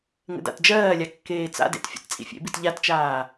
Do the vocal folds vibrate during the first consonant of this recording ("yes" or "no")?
yes